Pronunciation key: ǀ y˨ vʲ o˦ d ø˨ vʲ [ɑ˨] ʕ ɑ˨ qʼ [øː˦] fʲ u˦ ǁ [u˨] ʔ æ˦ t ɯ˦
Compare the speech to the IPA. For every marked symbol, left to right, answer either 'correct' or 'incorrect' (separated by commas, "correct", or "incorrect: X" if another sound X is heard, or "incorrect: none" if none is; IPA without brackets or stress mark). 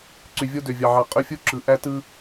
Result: correct, incorrect: ø˦, incorrect: ɯ˨